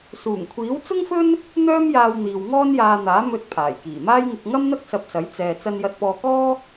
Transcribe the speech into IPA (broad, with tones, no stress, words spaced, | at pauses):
suː˨˩ŋkʷʰiː˨˥wt͡sʊ˥ŋfɵ˥n | n̪œː˥mjaː˧w n̪iː˨wŋɔː˥njaː˧n̪aː˨˥ mɵ˧t̚ pʰaː˨˩jkiː˨˩maː˥jŋɪ˧k̚ ŋɐ˥mn̪ɐ˥k̚ sɐ˧p̚sɐ˨˥j t͡sɛː˨ t͡sɐ˧njɐ˧t̚pɔː˧kɔː˥